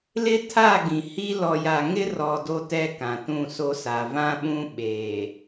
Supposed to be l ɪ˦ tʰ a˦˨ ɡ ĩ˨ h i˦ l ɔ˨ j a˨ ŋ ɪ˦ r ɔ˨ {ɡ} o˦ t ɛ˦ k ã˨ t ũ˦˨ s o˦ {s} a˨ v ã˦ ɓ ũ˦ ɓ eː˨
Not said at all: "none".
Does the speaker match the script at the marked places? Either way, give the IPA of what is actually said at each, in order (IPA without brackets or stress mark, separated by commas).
d, s